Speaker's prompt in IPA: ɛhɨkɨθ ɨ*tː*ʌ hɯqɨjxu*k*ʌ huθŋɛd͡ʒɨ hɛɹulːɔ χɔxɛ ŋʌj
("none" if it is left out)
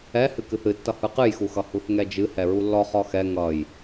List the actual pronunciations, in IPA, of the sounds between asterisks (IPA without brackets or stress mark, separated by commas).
tː, x